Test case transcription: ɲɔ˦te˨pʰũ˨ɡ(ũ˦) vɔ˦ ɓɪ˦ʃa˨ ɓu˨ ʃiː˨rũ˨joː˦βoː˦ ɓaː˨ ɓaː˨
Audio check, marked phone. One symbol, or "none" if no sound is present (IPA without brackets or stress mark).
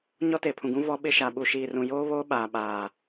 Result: ũ˦